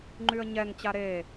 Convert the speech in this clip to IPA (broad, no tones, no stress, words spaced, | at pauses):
ŋ͡ǃyə̯ɲɛŋ t͡ɕaɾe